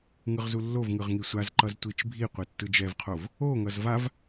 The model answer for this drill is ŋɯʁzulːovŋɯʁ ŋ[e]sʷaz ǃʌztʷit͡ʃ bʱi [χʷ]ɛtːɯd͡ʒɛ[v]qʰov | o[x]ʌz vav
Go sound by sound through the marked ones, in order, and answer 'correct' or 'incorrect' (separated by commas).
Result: incorrect, incorrect, correct, incorrect